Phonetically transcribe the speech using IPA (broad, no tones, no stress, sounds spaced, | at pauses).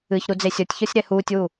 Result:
ɨ ç ɾ u d͡z e sʲ ɔ tʲ ç ɔ sʲ ɾ ɛ h uː tʲ w u